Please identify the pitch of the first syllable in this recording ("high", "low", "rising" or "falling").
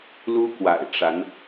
high